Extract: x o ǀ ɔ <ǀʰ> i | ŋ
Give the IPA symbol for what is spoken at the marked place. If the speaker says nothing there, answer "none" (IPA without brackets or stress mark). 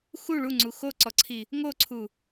ǀʰ